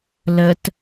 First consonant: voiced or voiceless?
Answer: voiced